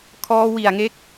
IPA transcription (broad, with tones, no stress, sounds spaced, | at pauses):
kʰ ɔː˧ w i˨˩ a̯ ŋ e˦˥ k̚